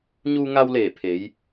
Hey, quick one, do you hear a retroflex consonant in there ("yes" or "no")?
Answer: no